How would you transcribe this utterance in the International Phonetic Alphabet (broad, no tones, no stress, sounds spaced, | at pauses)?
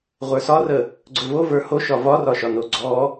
ʁʷ ə˞ s ɒ r ə | ɡ͡ǀ ɵ v o v ə˞ h o ʃ ɒ v ɒ r ɒ ʃ ɒ n o ɡ͡ǀ ɔ